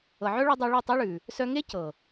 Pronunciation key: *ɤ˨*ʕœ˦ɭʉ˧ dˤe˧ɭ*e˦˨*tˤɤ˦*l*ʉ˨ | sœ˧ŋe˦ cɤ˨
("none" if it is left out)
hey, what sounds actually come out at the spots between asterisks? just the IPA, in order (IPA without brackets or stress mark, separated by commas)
ɤ˨, e˦˨, ɭ